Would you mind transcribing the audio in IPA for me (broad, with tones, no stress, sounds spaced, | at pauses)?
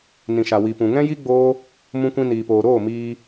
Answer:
n ĩ˨ ʃ a˨ w i˨ p ũ˨ ŋ ɛ̃˦ j i˦ ɡ͡b oː˦ | m ũ˧ kʷ ĩ˧ n iː˨ p oː˨ ɾ oː˦˨ m iː˧